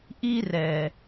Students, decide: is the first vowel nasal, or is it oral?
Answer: oral